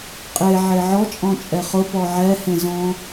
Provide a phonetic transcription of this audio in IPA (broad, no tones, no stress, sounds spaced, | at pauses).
qʼ e ʕ e ʕ ɔ t͡ʃʼ ɔ̃ t͡ʃʼ ɛ χ ʊ p ɔ ʕ ɛ h ẽ z ɔ̃